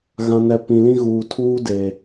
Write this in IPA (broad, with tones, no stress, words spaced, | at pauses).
ɣã˨nɛ˨ pĩ˨lĩ˦ɣuː˨ tʰuː˦de˨